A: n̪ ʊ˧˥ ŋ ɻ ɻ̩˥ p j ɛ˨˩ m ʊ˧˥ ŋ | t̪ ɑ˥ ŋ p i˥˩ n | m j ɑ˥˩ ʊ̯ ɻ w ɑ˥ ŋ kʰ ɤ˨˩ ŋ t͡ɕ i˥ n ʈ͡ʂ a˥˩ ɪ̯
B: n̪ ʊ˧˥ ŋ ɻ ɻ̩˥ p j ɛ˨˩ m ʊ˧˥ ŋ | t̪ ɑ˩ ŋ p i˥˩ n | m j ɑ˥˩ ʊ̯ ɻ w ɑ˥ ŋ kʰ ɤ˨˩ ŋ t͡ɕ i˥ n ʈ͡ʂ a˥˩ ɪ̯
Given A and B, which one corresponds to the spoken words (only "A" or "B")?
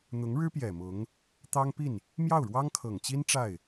A